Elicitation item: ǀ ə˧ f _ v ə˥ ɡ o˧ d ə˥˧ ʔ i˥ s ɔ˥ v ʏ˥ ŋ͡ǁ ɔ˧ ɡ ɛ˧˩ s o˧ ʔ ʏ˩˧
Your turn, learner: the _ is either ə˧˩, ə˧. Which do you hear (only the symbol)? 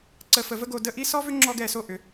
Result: ə˧